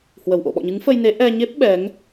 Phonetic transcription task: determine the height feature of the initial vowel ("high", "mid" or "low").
mid